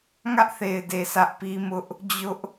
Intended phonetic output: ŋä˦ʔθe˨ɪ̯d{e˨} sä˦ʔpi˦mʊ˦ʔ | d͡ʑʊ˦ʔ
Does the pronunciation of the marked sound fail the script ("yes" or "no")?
no